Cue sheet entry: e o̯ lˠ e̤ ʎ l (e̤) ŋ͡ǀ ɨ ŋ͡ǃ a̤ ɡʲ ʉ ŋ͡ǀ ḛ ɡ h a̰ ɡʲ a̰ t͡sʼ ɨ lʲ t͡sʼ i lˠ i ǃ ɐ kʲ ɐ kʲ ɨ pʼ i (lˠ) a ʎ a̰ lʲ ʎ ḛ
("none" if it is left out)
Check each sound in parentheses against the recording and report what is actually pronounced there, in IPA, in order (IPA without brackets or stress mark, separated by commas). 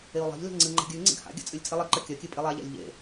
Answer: e̤, lˠ